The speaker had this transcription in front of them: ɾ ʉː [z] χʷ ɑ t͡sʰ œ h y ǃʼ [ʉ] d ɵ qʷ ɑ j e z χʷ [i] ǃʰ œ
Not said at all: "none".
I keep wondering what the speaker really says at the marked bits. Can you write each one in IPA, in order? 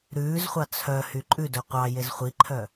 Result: z, ʉ, i

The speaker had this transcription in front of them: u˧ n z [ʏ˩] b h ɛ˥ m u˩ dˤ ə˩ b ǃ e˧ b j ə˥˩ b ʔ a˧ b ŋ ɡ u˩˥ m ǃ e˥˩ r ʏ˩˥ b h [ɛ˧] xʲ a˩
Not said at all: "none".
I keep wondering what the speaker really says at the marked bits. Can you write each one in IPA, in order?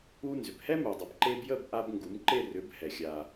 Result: ʏ˩, ɛ˩

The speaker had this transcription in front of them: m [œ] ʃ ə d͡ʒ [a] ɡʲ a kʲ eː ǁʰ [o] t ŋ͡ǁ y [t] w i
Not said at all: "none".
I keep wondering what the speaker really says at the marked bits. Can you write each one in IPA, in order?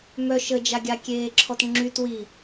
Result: œ, a, ɔ, t

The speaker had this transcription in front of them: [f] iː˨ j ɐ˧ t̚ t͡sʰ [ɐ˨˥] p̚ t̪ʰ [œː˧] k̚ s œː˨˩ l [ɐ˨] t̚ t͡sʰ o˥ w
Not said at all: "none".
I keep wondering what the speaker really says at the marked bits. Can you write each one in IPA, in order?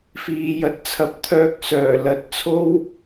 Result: f, ɐ˨˥, œː˧, ɐ˨˥

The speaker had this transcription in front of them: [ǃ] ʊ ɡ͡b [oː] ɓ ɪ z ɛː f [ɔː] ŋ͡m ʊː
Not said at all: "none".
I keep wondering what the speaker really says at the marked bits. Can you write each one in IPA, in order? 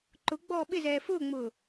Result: ǃ, ɔː, ʊː

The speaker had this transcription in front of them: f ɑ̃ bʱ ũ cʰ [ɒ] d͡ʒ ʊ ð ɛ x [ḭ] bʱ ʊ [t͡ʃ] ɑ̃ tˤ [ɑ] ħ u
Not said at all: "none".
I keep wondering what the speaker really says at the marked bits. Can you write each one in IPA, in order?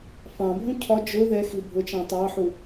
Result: ɒ, i, t͡ʃ, ɑ

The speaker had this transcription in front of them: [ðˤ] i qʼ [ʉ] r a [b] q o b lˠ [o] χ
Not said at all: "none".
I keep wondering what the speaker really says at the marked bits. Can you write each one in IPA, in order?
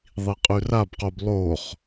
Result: ðˤ, ʉ, b, o

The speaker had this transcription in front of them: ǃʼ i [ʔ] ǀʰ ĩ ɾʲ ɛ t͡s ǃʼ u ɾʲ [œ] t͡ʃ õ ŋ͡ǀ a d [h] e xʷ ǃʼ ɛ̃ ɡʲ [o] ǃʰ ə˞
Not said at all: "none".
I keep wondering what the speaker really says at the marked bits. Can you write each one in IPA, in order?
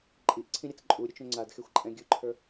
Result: ʔ, ɵ, x, ɵ

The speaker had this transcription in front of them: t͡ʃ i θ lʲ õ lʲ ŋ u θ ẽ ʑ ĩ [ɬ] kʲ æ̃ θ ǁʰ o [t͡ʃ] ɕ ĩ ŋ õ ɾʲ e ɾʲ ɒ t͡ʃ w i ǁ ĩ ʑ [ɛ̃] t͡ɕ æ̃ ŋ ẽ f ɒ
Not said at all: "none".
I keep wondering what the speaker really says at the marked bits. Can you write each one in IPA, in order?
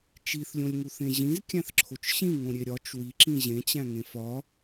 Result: z, t͡ʃ, ẽ

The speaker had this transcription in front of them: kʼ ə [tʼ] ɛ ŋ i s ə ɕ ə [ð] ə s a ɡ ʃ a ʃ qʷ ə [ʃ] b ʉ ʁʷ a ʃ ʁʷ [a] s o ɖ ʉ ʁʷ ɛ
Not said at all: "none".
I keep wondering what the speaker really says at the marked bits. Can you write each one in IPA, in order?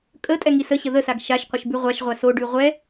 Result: tʼ, ð, ʃ, a

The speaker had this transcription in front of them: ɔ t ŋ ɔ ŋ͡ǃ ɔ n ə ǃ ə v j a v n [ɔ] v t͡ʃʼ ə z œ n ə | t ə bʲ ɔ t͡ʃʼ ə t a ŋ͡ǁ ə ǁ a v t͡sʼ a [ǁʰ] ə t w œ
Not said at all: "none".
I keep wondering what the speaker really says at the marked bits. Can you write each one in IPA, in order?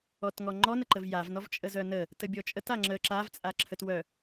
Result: ɔ, ǁʰ

